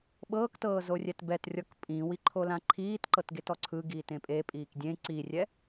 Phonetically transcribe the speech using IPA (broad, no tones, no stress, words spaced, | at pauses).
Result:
ɓɤːktɤː zorʲɛtbɛtrʲɔk pʼĩwi ǃʰolãǃʰiːtǃɤt ɡetɔǀʰɯɡiːt ẽpʼepʼiːk dʲẽ ǀirʲɛ